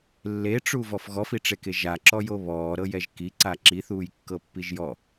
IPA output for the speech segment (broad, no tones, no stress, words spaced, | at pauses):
lːeʈ͡ʂuvɔf ɣɔfiʈ͡ʂeke ʒaǁɔjo βɔːɾɤjɛʒ kiǀa ǁiθuːjkːɤpːiʒ jɔ